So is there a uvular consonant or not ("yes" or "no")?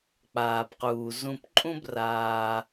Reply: yes